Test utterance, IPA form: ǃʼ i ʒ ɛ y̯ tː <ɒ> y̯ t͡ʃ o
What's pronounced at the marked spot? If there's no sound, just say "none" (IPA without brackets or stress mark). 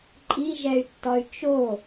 ɒ